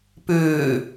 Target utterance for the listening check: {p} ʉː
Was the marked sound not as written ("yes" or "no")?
no